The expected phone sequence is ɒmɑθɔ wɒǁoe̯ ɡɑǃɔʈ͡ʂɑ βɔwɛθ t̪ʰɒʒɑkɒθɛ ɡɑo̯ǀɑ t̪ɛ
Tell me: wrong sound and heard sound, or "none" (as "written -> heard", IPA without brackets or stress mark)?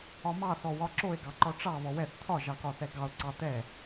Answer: none